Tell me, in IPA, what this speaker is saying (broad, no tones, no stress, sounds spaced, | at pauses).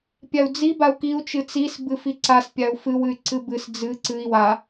pʲ a u̯ d͡z i b a u̯ k i u̯ t͡ʃ ɨ t͡s i s b ɨ f i ǀ a s pʲ a u̯ f ɨ w ɨ y̯ ǀ ɨ b ɨ s d͡z ɨ ǀ ɨ i̯ w a